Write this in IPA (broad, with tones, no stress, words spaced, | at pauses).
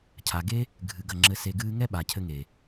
cʰa˨ɡe˦ | ɡʱɨ˨ɡɐ˦˨ ŋ͡ǁɘ˧ se˧ɡɨː˦ ŋɛ˦ɓa˨cʰɘ˧ŋe˨